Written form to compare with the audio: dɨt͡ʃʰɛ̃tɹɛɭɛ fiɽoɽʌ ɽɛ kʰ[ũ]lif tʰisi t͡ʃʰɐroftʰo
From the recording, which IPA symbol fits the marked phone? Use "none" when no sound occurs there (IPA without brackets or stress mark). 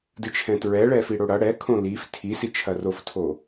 õ